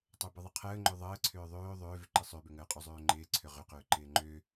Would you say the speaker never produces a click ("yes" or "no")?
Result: no